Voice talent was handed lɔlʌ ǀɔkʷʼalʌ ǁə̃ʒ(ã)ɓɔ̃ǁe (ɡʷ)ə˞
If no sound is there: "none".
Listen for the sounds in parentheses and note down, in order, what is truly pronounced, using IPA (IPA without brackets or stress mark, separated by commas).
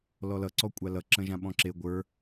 ã, ɡʷ